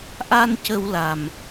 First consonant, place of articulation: glottal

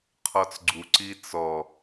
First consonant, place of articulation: uvular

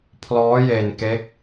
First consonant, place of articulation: labial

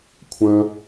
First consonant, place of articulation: velar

